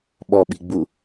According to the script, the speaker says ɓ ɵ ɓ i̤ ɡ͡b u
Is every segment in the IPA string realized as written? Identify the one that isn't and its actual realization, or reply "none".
ɵ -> ɔ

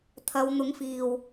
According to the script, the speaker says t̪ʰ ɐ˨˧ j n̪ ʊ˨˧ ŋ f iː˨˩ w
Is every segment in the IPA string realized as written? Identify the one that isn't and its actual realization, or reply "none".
j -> w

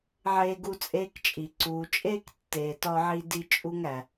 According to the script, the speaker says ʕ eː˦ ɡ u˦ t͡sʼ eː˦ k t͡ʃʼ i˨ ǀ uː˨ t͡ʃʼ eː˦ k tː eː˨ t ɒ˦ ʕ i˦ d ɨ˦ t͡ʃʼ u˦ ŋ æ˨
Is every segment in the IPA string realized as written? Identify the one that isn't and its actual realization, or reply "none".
ɨ˦ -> i˦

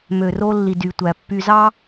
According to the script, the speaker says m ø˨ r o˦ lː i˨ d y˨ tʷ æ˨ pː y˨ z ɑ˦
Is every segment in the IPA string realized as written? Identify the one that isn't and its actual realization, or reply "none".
none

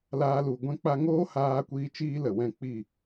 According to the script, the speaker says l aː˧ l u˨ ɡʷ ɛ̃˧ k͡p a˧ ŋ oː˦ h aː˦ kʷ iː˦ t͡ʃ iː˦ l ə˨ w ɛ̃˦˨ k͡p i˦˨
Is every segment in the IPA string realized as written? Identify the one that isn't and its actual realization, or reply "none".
none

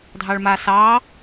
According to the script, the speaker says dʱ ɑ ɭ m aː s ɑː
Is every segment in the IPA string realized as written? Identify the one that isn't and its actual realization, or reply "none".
none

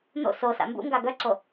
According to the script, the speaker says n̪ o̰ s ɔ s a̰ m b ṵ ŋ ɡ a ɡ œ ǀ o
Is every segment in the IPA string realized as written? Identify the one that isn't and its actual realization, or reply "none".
ɔ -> o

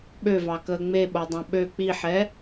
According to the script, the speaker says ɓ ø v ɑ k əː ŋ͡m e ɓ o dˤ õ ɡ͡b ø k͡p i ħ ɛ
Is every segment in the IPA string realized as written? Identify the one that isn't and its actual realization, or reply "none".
ɡ͡b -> ɓ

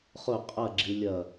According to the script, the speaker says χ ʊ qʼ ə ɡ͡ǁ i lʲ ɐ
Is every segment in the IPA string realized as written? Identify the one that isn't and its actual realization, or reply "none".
ə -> ɐ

